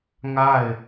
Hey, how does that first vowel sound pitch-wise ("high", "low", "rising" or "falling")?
falling